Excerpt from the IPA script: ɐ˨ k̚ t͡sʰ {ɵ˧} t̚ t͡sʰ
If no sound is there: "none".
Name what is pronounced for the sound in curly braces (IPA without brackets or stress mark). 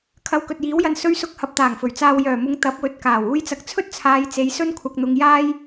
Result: ɵ˥